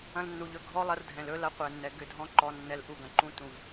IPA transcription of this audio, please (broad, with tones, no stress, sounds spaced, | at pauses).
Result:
ɐ̃˧ l nː u˨ ʎ ɵ˧ ɡʱ ɔ˦ lˠ ɐ˧ r dʱ ɛ̃˨ l ɵ˦ l ɐ˧ qʷ ɛ˨ nː ɛ˨ ɡ ʏ˦˨ dʱ ɔ̃˦ ǃ ɔ˧ nː ɛ˧ l ʔ u˧ ɡ ɐ̃˨ ǃ ũ˦ t ũ˨ v